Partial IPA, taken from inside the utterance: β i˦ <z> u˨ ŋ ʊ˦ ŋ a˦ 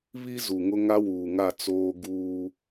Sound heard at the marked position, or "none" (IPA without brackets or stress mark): z